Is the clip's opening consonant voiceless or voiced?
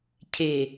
voiceless